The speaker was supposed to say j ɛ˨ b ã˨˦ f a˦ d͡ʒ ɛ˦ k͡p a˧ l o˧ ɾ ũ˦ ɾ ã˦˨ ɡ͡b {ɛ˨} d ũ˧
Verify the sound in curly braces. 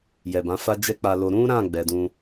correct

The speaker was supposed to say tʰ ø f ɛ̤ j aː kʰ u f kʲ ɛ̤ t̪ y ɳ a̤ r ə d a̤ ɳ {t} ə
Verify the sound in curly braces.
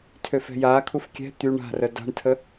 incorrect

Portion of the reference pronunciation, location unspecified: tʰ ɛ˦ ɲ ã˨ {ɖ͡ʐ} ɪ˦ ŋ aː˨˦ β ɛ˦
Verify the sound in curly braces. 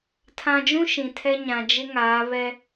incorrect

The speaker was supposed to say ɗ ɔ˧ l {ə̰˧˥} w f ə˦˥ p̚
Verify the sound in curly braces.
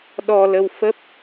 incorrect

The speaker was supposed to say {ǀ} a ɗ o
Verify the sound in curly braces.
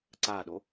correct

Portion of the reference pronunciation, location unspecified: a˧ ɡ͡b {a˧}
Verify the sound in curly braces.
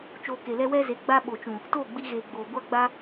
correct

